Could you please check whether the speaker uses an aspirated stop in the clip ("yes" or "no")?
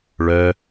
no